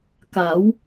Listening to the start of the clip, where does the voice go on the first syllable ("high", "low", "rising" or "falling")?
rising